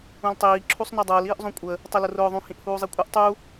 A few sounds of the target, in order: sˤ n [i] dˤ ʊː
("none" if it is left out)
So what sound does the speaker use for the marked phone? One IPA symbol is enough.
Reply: i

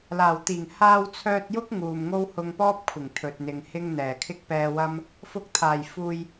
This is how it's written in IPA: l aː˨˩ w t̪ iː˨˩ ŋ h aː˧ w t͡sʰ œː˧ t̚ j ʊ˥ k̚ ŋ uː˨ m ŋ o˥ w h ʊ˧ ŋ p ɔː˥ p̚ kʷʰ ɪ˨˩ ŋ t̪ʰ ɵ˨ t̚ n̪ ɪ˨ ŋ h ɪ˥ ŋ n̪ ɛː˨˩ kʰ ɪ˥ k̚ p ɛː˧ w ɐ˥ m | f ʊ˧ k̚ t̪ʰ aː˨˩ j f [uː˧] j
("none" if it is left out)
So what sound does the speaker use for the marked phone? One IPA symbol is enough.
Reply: uː˧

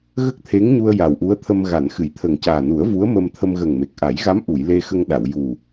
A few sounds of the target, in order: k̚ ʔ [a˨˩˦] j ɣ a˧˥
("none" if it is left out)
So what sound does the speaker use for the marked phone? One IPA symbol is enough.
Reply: a˨˩˦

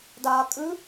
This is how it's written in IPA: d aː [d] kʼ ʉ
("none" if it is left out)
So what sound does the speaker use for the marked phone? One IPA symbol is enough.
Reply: none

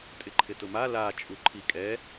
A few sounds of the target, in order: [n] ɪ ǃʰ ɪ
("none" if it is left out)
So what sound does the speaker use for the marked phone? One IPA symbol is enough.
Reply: tʼ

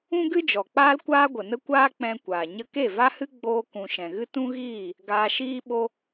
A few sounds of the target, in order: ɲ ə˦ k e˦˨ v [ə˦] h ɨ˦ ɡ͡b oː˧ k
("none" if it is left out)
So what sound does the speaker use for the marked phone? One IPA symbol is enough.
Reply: a˦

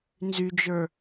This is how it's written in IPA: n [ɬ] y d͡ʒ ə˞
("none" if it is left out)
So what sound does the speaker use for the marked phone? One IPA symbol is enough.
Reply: z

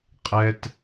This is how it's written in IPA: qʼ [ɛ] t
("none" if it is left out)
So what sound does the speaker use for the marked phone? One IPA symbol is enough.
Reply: ɛ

